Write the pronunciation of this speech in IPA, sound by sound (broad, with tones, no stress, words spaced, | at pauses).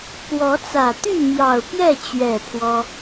kwɔ˨˦t͡sä˨˩ t̪y˥˨mjɑ˨˩ʊ̯pjɛ˥˨ t͡ɕɥɛ˥˨ pʰwɔ˦